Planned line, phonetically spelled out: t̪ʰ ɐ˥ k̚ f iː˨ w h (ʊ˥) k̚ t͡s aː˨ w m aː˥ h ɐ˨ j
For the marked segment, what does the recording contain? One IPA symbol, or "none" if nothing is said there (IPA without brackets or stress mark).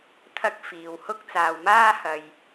ʊ˥